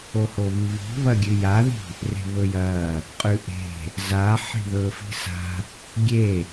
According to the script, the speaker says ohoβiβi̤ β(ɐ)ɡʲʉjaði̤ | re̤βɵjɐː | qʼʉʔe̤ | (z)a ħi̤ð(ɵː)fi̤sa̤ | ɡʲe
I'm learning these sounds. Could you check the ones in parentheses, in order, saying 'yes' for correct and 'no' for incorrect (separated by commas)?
yes, yes, yes